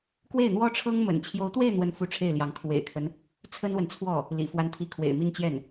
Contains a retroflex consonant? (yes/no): yes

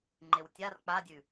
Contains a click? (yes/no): yes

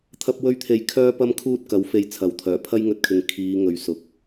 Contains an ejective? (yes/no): no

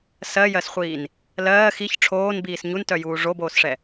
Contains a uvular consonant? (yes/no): yes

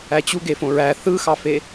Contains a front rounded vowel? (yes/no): no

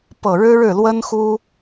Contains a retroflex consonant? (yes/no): yes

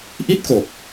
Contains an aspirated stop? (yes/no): no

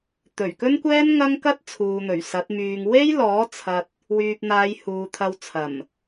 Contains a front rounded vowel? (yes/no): yes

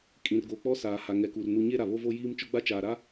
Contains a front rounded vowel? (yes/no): no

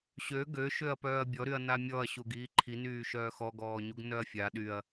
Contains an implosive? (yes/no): yes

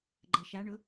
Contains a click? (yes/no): yes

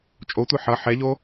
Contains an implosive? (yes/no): no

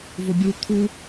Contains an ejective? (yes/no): no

